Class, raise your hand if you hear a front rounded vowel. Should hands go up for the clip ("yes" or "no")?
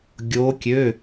yes